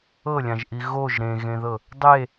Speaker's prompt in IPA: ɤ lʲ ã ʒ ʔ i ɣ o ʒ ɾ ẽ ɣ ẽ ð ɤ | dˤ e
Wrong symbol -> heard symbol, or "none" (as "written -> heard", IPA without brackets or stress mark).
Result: none